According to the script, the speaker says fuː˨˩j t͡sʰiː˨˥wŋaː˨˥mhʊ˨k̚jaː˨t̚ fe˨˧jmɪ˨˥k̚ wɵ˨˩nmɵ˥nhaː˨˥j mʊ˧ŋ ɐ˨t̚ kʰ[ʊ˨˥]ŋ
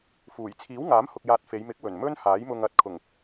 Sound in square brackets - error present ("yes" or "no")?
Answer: yes